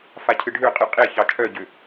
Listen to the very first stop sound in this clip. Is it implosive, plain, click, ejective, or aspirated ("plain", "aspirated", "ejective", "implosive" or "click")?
aspirated